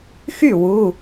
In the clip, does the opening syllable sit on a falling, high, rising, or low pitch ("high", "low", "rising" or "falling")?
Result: falling